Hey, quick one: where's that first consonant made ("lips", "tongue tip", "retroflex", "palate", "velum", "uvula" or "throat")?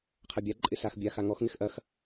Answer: uvula